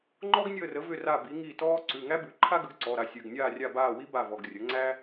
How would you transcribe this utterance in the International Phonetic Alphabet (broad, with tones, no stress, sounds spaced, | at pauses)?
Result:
ŋ͡ǃ ɔ˥ ɡ nʲ əː˦˨ r ə˩˥ v ʏ˦˨ r a˦˨ b i˩˥ ŋ i˦˨ t ɔː˥ ǀ ʉ˩˧˩ ŋ æ˥ b ʉ˩˥ ǃʰ a˥ ɡ ə˩˥ ɡ ǀ ɔ˩˧˩ ɾ a˦˨ sʲ ʉ˩˧˩ ɡ nʲ aː˦˨ rʲ a˦˨ b aː˦˨ w i˥ b a˦˨ v ɔ˩˧˩ ɡ rʲ ə˩˥ ŋ͡ǀ æ˥